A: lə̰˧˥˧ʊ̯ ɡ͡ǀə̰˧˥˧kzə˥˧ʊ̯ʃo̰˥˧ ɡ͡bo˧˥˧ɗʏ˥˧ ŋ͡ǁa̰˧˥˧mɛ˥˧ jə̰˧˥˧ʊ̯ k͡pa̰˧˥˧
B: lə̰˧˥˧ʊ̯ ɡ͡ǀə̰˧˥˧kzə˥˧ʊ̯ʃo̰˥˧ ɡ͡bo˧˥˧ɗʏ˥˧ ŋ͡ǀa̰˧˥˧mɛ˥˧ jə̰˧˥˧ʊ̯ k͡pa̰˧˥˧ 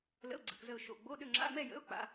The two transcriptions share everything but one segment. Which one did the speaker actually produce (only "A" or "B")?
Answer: A